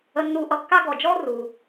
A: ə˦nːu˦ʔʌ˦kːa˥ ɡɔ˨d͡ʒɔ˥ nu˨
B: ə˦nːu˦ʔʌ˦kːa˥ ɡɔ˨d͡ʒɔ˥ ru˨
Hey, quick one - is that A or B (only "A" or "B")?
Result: B